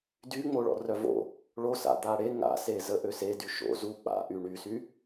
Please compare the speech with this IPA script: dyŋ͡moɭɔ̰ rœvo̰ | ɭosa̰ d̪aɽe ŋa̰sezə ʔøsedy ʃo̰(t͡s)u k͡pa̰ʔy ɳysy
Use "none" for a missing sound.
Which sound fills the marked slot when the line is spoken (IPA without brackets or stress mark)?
z